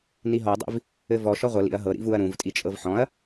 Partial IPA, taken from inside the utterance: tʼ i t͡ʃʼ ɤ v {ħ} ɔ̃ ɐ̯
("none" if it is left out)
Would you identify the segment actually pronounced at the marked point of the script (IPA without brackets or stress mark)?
ħ